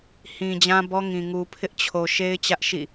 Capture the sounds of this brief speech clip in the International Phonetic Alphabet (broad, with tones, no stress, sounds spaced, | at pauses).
h ĩ˨ d͡ʑ ã˦ b ɔ˦ ŋ ĩ˨ ŋ u˨ pʰ ɪ˦ ʔ t͡ɕʰ o˨ ʃ e˦ ɪ̯ t͡ɕ ä˦ ʔ ʃ ḭ˦˨